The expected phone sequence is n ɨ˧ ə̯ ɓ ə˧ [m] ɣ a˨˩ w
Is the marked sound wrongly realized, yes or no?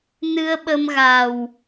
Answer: no